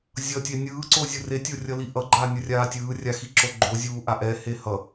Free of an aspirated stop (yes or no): yes